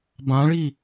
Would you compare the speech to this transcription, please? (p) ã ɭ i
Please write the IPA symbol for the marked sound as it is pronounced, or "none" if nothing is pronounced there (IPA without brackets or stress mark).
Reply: b